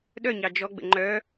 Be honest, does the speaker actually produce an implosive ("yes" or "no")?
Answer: yes